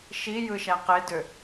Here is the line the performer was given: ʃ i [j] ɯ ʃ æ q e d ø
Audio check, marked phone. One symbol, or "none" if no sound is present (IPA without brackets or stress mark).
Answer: j